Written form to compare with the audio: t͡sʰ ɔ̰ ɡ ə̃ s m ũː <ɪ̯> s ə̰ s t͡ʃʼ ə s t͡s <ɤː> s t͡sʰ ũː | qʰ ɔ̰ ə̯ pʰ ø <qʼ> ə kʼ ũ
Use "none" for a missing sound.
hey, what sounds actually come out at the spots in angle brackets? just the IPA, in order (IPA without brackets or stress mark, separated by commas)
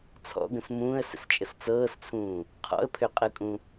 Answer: ə̯, ɤː, qʼ